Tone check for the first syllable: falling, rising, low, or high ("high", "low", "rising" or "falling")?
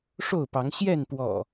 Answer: falling